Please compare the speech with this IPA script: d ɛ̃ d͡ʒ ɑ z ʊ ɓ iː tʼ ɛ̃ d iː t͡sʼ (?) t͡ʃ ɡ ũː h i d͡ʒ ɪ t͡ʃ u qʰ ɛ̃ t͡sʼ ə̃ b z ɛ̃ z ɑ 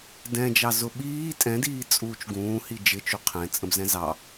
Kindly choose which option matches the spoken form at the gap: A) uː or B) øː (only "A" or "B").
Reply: A